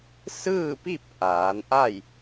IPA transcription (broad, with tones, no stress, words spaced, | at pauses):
sɯː˥˨pi˥˨p̚ ʔaː˩˧nʔa˥˨j